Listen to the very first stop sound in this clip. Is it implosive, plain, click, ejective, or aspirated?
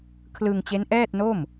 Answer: aspirated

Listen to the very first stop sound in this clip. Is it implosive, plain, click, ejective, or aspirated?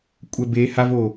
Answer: ejective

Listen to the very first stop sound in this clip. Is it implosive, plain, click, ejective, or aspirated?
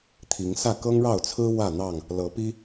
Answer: aspirated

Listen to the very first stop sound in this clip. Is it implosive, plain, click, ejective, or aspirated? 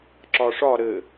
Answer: click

